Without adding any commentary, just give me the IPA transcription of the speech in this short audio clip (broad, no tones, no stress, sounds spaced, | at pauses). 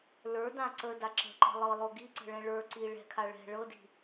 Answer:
l ə˞ d ã ǀ ə d a ǁ ə̤ ǃ ə̤ lˠ ɤ lˠ o ɡ i ǀ ə̤ ɭ ɛ̃ ɭ ə˞ ǀ i ɭ ɛ̤ kʰ a ɭ ɛ̤ ɭ ɤ d i̤